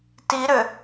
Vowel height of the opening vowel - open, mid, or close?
close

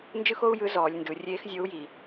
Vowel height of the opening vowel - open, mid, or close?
close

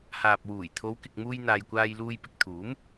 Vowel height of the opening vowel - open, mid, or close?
open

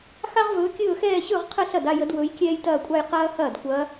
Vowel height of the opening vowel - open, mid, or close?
open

